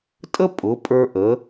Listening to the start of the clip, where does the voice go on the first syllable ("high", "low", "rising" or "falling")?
high